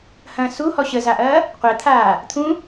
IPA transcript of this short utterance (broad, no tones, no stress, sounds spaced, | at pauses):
h ɐ̃ s u h ɔ ɕ ə z a ʔ ɐː | qʷ ɛ t̪ʰ aː | t̪ʰ ũ